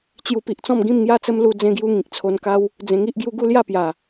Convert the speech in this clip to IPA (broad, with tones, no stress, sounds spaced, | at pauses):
t͡ɕ j u˧ p i˨ ʔ t͡s ɔ̃˥˧ m ɡ ĩ˥˧ m ŋ j a˥˧ t͡s ə˦ m l u˧ d͡z ẽ˧ ɡ j u˧ ŋ ĩ˨ k̚ t͡sʰ o˧ n k a˦ w | d͡z ẽ˧ ŋ i˦ ʔ ɡ j u˦ ɡ u˥˧ l j a˥˧ p j a˨˩